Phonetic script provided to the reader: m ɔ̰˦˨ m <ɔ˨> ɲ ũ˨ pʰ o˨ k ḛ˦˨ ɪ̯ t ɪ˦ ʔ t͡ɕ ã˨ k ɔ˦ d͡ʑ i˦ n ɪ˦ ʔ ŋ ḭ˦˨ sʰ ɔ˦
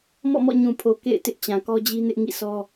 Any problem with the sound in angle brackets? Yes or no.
yes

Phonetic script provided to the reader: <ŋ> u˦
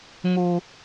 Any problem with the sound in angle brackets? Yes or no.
no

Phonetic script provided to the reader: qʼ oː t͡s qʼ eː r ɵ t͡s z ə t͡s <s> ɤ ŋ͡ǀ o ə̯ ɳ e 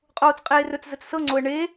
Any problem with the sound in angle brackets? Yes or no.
no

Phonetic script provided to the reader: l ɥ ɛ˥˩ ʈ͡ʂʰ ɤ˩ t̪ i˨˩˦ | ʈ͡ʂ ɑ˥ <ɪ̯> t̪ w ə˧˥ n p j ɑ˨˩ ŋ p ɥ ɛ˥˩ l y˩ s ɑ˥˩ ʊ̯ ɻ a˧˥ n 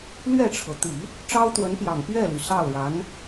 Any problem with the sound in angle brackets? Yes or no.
yes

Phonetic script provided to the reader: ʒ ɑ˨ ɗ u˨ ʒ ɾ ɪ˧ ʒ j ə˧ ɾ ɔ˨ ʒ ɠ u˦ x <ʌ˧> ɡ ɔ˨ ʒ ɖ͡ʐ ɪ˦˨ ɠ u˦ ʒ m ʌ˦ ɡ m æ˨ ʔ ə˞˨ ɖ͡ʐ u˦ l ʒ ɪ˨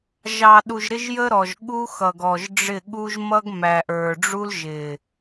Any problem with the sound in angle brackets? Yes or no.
yes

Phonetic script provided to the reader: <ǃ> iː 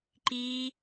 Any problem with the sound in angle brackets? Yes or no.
no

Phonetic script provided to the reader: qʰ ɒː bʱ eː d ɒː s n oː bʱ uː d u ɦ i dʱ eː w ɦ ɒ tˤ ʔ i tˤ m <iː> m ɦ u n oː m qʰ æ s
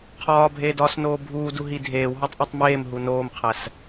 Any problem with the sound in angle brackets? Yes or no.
yes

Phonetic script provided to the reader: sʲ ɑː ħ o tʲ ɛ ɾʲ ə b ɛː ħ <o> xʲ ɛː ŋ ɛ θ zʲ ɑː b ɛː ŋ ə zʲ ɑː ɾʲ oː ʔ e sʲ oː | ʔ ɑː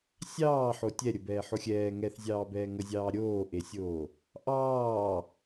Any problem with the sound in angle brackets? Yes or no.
no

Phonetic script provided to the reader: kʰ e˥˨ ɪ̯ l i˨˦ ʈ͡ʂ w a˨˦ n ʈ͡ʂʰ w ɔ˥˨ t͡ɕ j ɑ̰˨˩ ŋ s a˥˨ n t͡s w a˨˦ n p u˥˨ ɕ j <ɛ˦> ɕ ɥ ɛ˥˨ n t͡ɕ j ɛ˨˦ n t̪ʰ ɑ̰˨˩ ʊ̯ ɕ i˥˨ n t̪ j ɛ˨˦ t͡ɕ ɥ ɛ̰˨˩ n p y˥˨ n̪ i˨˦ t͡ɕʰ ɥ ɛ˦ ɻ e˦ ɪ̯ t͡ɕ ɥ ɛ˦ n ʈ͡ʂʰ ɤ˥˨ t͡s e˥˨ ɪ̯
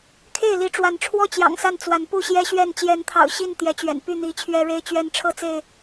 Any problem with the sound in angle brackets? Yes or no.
no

